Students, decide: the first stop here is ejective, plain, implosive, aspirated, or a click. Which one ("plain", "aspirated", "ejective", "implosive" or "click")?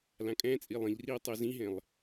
ejective